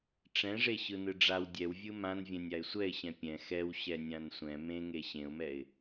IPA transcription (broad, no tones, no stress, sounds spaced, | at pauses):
ʈ͡ʂ ɛ̃ ʐ e ɕ ɯ n ɯ ɖ͡ʐ a w dʲ ɛ w vʲ ɯ m ã n vʲ ɛ̃ nʲ a ɪ̯ sʷ ɛ ɪ̯ ɕ ɛ̃ pʲ ɛ̃ x ɛ w ɕ ɛ nʲ ã n sʷ ɛ̃ m ẽ ŋ e ɕ ẽ ʊ̯ m ɛ ɪ̯